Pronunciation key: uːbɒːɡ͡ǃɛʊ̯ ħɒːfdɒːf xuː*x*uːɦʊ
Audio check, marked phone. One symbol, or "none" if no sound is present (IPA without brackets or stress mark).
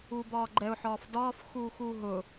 x